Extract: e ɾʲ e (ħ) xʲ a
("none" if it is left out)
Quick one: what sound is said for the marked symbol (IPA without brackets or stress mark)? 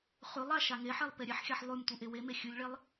ħ